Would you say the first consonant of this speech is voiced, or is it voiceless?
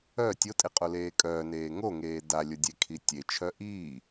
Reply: voiceless